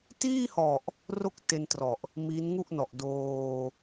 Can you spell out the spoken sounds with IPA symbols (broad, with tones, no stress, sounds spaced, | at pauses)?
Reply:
t iː˥˩ h ɔ˨˩ ʔ | r o˥˩ k̚ t e˧ n t r ɔ˨˩ ʔ | m i˦˥ n ŋ u˥˩ ʔ n ɔ˨˩ ʔ d oː˧